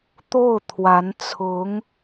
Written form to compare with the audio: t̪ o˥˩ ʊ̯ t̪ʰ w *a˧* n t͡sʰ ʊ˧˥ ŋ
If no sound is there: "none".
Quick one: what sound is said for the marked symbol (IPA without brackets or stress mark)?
a˧˥